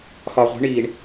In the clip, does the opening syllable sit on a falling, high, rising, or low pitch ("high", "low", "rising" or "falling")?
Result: low